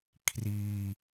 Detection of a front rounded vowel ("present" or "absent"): absent